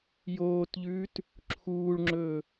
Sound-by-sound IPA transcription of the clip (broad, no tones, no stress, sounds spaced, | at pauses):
j oː t ʎ ʉː t | ǁʰ uː ɭ ŋ͡ǁ ɵː